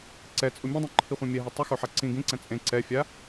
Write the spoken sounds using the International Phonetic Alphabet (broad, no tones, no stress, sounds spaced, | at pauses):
ǀ ɛ t͡sʼ u mʲ õ dˤ ĩ ǃʰ i χʷ ã mʲ ɛ ɦ ɛ tˤ u x o ħ a ǀ ĩ ɡ ĩ ǀ ɛ̃ t͡sʼ ẽ ǀ ɛ fʲ a